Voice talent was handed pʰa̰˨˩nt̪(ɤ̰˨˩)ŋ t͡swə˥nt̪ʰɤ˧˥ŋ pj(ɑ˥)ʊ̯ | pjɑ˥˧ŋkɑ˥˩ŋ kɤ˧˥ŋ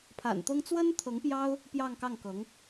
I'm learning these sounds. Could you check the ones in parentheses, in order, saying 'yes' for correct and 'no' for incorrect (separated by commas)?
no, yes